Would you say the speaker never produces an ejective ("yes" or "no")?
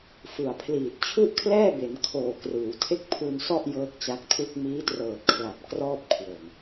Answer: yes